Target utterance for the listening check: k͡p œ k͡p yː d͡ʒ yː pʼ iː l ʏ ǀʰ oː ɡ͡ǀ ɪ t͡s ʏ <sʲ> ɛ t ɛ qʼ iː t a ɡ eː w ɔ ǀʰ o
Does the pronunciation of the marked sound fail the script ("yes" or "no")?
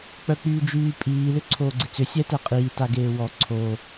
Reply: no